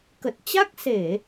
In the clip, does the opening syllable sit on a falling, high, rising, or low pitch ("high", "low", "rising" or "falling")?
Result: low